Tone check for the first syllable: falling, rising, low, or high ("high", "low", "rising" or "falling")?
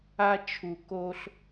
high